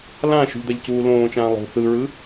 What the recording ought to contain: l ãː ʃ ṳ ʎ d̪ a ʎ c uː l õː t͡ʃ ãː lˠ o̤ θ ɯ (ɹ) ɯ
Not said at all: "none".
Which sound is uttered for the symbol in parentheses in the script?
ɹ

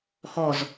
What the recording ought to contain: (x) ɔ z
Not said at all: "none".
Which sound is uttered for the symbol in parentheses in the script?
x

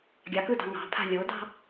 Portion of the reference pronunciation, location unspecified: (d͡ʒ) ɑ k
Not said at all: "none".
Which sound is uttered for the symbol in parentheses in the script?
ɡʲ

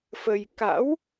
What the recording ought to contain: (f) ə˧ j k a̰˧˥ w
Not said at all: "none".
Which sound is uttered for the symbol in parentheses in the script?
f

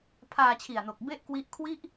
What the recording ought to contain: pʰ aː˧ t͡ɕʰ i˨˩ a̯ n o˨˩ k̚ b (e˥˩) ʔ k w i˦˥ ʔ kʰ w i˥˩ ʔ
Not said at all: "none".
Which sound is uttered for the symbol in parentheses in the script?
e˥˩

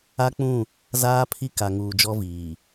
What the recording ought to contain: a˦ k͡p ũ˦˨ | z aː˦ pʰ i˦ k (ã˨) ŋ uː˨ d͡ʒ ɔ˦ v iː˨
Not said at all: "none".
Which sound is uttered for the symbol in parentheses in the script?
a˨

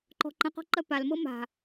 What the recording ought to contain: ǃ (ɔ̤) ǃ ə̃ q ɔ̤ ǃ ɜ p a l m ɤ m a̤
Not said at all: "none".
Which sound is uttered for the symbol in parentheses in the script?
ɔ̤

